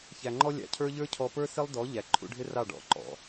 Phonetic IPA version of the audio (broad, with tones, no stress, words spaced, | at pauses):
çæ˨ŋ͡ǃɔ˦ lʲɑ̰˨cʰə˞˦ʎə˞˦cʰɔ˧ pə˞˦sɪ˦lˠdɔ˨˦ ʎæ˨ǃʰṵ˧ɖʱɪ˦rɑ˦˨ ɖɔ̰˧ǃɔ̰˨